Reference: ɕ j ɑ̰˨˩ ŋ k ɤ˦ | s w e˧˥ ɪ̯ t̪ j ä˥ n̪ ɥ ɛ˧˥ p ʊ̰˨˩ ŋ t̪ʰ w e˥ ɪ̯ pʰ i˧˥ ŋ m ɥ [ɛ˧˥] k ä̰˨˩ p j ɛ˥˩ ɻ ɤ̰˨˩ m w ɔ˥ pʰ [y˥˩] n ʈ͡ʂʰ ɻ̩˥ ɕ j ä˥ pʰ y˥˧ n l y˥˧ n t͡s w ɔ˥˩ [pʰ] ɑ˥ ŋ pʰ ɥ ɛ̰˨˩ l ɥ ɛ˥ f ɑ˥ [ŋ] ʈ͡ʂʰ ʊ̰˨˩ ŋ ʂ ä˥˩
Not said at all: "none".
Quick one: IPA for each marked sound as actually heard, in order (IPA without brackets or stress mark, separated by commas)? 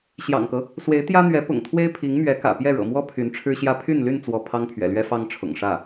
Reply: ɛ˧˥, y˧˥, pʰ, ŋ